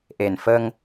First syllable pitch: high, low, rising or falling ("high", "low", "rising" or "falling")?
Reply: low